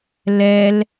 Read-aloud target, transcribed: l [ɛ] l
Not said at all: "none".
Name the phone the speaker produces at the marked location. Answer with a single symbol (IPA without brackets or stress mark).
ɛ